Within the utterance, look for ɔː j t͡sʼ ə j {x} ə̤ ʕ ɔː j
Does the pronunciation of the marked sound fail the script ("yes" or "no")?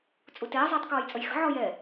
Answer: no